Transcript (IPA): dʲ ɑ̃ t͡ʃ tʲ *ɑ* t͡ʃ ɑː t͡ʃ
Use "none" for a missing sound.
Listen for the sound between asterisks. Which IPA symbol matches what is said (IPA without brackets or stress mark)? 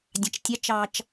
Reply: ɑ